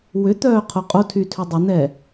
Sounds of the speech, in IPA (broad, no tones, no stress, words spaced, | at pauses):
wʏt̪œː qʰoqʼotʰy tʰʏdˤʏn̪ɛ